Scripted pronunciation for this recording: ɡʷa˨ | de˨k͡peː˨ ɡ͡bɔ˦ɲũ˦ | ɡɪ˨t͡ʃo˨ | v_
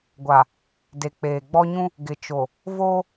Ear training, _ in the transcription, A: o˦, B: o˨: A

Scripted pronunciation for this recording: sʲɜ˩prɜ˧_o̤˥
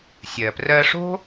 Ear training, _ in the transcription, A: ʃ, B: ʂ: B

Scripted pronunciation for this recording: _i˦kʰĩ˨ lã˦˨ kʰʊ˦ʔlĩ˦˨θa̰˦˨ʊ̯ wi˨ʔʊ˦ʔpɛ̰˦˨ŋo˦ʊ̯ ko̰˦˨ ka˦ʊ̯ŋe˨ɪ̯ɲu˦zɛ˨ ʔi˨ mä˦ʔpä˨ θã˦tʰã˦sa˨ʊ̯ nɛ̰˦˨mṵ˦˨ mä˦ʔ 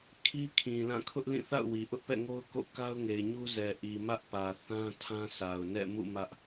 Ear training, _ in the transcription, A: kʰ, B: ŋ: A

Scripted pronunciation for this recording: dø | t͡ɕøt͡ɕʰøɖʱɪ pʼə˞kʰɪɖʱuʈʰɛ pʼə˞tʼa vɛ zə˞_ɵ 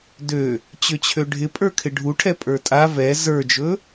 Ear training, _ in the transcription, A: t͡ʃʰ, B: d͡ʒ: B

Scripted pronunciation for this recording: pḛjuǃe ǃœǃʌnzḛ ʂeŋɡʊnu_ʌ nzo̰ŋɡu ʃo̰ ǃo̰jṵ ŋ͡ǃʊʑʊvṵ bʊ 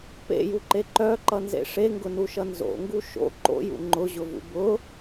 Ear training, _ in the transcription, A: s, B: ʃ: B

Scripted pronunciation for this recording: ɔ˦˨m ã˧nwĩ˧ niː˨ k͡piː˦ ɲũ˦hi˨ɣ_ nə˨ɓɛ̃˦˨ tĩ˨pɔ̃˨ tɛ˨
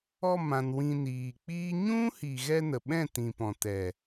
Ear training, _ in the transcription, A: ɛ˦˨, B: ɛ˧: B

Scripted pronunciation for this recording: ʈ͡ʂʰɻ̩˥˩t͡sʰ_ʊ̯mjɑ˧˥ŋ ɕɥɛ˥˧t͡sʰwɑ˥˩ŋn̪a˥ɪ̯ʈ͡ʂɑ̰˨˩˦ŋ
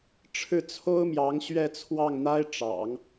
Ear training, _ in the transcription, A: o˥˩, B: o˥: B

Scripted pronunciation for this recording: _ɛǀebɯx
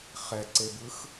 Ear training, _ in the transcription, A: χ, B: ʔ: A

